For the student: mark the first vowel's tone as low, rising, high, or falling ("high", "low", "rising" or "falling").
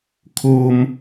high